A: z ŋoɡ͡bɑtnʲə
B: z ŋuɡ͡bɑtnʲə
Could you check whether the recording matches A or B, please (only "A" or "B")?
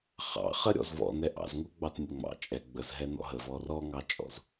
B